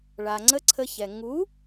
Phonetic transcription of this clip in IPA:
ɭa˨ŋ͡ǀə˦ǀʰə˧çɛ˨ ŋu˨˦

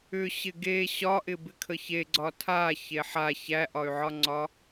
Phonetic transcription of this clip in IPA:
ʏɕɪ ɡe ɕɒʔɪ bɪkʰəçe ɡ͡ǀɒtʰa çeħa çæʔɒy̯ʕɒŋ͡ǀɒ

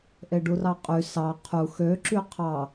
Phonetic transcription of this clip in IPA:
ʔeɖurɑqʼy sɑ qʰu xøǁy qʰɑ

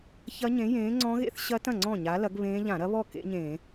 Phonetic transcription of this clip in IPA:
çɐ˦˥ɲẽ˨˥jẽː˨˥ ŋ͡ǀɔ̃˦˥ɣḛ˦˥θ ɕɐ˦˥tɐ̃˥˩ ŋ͡ǀɔ̃˥˩ɲa˨˥lɐ˨˥ɡ βẽː˦˥ ʎã˧˩˧ɾɐ˦˥βɔ˥˩ kḛ˦˥ɲẽː˧˩˧

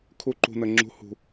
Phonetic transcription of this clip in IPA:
kʰu˨˦ ǃṳ˨nə˨ ŋ͡ǁṳ˨˦ hṳ˨

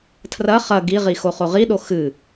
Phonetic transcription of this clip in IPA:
tʰrɐ χɐ ɡiʁixo χoʁiɗo xɨ

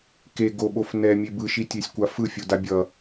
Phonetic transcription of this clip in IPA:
ke ɡoɓof nɛmʲe bɯʃitʲesʲkʷa fɯfʲoda bʲʌ

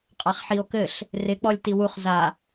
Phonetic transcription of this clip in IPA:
qʼaχħio̯kɘɬ | rɪk͡pɔlʲ tiwuχ za

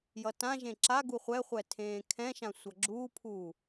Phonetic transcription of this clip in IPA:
jʌtãʒẽ ǁa ɡuχʷɛχʷɛ tʰẽːkʰɛ̃ʃã sʷʌɡ͡ǁuːpʰuː

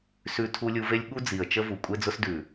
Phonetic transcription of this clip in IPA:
sʉ˧tʰu˧lʲu˧ve˦lʲ ɠu˦d͡zi˨ə̯ t͡ʃə˧vu˨kʷʼe˧ d͡zʊ˧sdʉ˨

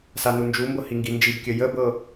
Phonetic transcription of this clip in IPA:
sanund͡ʒumbɤ hiŋɡind͡ʒibkʲɘ jəbɤ

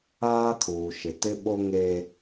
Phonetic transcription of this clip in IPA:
aː˦kʰuː˨ʃɪ˨ tɪ˦ɓo˦ŋe˦

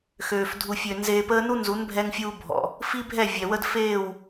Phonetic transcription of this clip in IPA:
xøː˨f dʱu˨fʲø˨ nzeː˧pəː˦ nu˦nzu˨˦nbʱɛ˧ŋfʲuː˧ bʱɔ̰˨ | fi˦bʱɛ˦˨ vʲɛ˨wə˦dfeː˦˨w

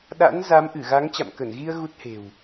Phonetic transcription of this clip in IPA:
ɗa̰˧˥nza˨˦mʔɨ˧˩ ɣa˨˦ŋt͡ɕa̰˧˨mkə˧˩nɣi˧ə̯ ɣu˦˥t̚he̤˨˩w

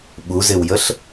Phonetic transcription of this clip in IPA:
ɓuzɪwjəɬ

